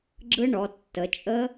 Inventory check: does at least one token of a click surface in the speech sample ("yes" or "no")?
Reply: yes